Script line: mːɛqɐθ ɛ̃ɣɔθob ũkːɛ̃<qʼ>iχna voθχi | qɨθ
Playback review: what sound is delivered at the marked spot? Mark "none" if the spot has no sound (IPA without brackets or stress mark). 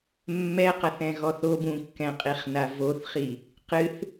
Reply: qʼ